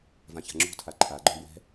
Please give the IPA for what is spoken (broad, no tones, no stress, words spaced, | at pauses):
vãça̤ŋ͡ǁṳtʰa ǃʰaɡ͡ǃõ bwɛ̤